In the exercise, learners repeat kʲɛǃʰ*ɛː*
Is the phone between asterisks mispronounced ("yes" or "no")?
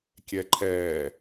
no